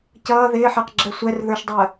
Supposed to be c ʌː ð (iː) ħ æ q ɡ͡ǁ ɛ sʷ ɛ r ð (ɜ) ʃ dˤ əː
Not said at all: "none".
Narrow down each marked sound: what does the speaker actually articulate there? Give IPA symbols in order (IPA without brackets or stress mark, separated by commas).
ɪː, ə˞